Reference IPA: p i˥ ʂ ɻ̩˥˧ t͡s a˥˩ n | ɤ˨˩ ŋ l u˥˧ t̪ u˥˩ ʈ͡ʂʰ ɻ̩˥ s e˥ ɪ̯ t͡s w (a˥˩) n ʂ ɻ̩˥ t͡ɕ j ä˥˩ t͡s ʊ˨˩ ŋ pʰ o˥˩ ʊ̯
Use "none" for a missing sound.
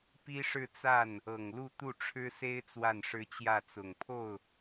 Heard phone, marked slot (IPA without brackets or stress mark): a˥˩